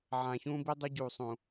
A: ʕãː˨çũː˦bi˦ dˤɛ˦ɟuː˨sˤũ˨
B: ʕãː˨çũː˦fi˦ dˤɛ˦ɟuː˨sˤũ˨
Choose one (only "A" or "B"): A